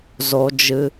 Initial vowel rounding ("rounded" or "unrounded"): rounded